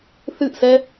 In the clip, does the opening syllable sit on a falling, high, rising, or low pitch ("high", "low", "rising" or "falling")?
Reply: falling